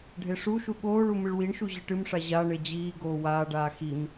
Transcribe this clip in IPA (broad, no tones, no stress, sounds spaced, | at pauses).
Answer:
ɖʱ e ʂ u ʃ u ɠ oː ɭ u m ɨ ɭ w i ɳ ʃ u ʑ ɨ ʈ ɨ m ʂ a ʑ a ɳ e d͡ʑ iː ɡ oː w aː ɖ aː x i m